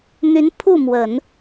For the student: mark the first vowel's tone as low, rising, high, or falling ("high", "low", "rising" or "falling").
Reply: rising